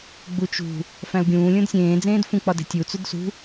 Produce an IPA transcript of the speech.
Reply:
ɡ͡but͡ʃṳ | fæ̃u̯ɡʲũː lʲũdsʲẽː d͡zẽːdfũ k͡pɒde̤tʲu t͡sudsṳ

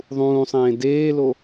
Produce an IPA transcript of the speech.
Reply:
ðˤũːsˤẽː deːlo

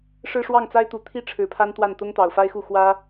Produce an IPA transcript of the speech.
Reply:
ʂɻ̩˥˧ʂwɑ˥˩ŋt͡sa˥ɪ̯t̪u˨˩ t̪ʰi˥ ʈ͡ʂʰɻ̩˧˥pʰa˥nt̪wa˥˩n t̪ʊ˥ŋt̪ɑ˨˩ʊ̯fa˥ɪ̯xu˥˩ xwä˥

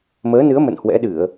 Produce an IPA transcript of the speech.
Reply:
məː˨˦nɨ˨˦ə̯ mə̰˧˨nhwɛ̰˧˥ɗɨ˧˩˨ə̯

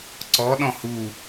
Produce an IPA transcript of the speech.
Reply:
ǀɔɗɔ̃ hu

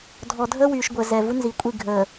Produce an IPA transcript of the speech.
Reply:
dʱɔ˨dʱəː˦wyː˨ʃɡʷəː˨ zɛ˨ vu˦nzi˨˦kʷʼi˦˨ ɡʱəː˨

